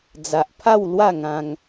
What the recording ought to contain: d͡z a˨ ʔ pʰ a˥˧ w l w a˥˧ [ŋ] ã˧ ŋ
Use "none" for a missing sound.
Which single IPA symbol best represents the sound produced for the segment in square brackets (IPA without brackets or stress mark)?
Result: ŋ